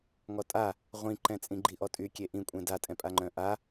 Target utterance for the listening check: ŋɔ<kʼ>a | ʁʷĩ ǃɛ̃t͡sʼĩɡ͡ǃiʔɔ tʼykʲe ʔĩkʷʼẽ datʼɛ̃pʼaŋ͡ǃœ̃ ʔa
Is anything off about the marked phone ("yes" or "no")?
yes